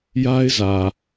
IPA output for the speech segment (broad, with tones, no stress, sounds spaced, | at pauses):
j a˦ ɪ̯ z ä˨